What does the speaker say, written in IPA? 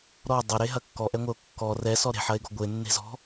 ɾ ɔ dˤ ɐ ɾ e ɦ ɐ kː ɔ ʔ ɛ ŋʷ ɛ o̯ kː ɔ r ɛ s ɔ ɾ e̤ ħ ɐ e̯ ɡ ɔ̤ ɡʷ e nː e̤ z ɔ̤

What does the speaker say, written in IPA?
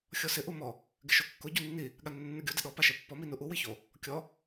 xʲ ɔ s ɪ ʔ u m ɔ | ɡ ɪ ʃ o kː ʊ ɟ u nː i | ɠ a nː ɪ nː u ɡʲ o d ɪ ɗ ɔ p a ʃ ɛ pː ɔ m i n u ʔ u w i ç o | kʲ ɔ

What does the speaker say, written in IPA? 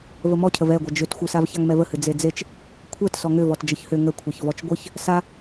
v ə m ɔ cʰ ə v ɛ ɡʷ ɐ d͡ʒ ʏ t xʷ ɨ s a v ç a ŋ m ɛ v ə h ɨ d͡z e d͡z e t͡ʃ | kʷʰ ɛ t s ɔ ŋ ʏ v ɔ t d͡ʒ ə ç h ʏ ŋ ə kʷʰ e ç v ɔ t͡ʃ ɡʷ ɨ ç | s a

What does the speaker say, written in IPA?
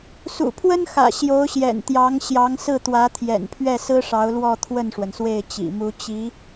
s ṵ˨˩ pʰ w ə˥ n x ä̰˨˩ ɕ j o˧˥ ʊ̯ ɕ j ɛ̰˨˩ n t̪ j ɑ˧˥ ŋ ɕ j ɑ˧˥ ŋ s ɹ̩˥˩ t̪ w ä˧˥ t̪ʰ j ɛ̰˨˩ n pʰ ɥ ɛ˥˩ s ɹ̩˥ ʂ ɑ˧˥ ʊ̯ l w ɔ˥˧ t̪ʰ w ə˥˩ n ʂ w ə˩ n s w e˥˩ ɪ̯ t͡ɕ ḭ˨˩ m u˧˥ t͡ɕ i˧˥

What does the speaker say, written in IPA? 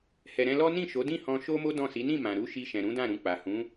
h ɛ˨ ɾ ɛ̃˧ l ɔ˦ n ĩ˦˨ ʃ o˨˦ d ĩ˦˨ h ɔ̃˧ ʃ o˦ m o˦ d ɔ̃˦˨ s i˨˦ n ĩ˦˨ m ã˨ ɾ u˨˦ ʃ i˧ ʃ ɛ̃˨ ɾ ũ˨˦ d ã˦˨ ɾ ũ˧ k͡p a˨ h ũ˨˦

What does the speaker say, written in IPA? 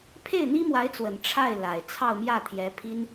pʰ e˥˩ ɪ̯ n̪ i˥ m w a˧˥ ɪ̯ t͡s w ə˨˩ n ʈ͡ʂʰ a˥˩ ɪ̯ l a˨˩ ɪ̯ t͡sʰ ɑ˥˧ ʊ̯ m j ä˥˩ t̪ʰ j ɛ˧˥ pʰ i˥ n

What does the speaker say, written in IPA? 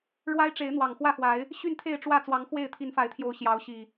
ɻ w a˦ ɪ̯ ʈ͡ʂ e˨˦ ɪ̯ n̪ w ɑ˨˩ ŋ x w ä˥˨ x w a˨˦ ɪ̯ | ɕ y˥˨ n t̪ʰ e˥˨ ɪ̯ ʈ͡ʂ w ä˥˨ t͡s w ɑ˨˦ ŋ x w e˥˨ ɪ̯ t̪ʰ i˨˦ n f a˨˦ ɪ̯ t̪ʰ j o˨˦ ʊ̯ ɕ j ɑ˨˦ ʊ̯ ɕ i˨˩

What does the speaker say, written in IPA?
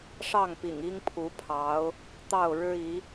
ʂ ɑ˥˩ ŋ p ḭ˨˩ ŋ i˥ ŋ pʰ u˧˥ pʰ ɑ˧˥ ʊ̯ | t̪ ɑ˥˩ ʊ̯ ɻ ɻ̩˥ i˧˥

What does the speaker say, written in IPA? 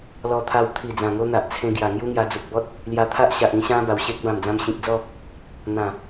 l ɔ˧ t̪ʰ a˧ w t̪ʰ i˨˩ d͡z ã˨˩ ŋ o˧ n̪ a˨ ʔ t͡sʰ ẽ˧ ɡ j a˨˩ ŋ j u˦ ŋ j a˧ d͡z u˨ k̚ b ɔ˦ t̚ | l j a˧ t̪ʰ a˦ ʔ ɕ a˨ ʔ ĩ˧ ɕ ã˧ b a˨˩ w ɕ e˦ k̚ b ã˨˩ m d͡z ã˧ m ɕ ĩ˨ k̚ d͡z ɔ˥˧ | n̪ ã˨˩

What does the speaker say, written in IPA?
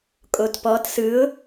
kʼ o t p ɔː t s ɯ ʊ̯

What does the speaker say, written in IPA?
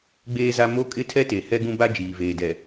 ɡ͡b eː˦ z a˦ m o˦ kʼ ɪ˦ tʰ ɛ˦ t e˨ h ɛ˦ ɡ ũ˦ b a˦ d͡ʒ iː˨ v eː˨ d ɛ˨

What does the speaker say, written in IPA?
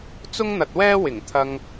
t͡s ʊ˥ ŋ n̪ ɐ˨ t̚ w ɛː˥ w ɪ˨˩ ŋ t̪ʰ ɐ˧ ŋ

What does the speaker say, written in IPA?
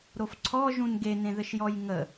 ɾ o f ǀʰ ɔ ʒ ũ n ɡ e n ẽ ð ɘ ʃ j ɔ j ŋ ə

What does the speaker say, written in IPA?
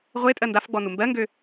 ʁʷ e tʼ ɜ n d a f ɡ͡b ɔ n u m b ɜ ŋ ɡ ø

